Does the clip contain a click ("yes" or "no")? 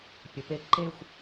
yes